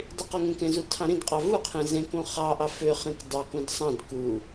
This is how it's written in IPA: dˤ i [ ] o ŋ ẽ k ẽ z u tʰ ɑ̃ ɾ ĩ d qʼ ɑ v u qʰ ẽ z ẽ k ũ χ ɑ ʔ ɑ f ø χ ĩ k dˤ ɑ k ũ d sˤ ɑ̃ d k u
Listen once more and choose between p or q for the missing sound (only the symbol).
q